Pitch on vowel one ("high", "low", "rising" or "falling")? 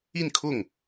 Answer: falling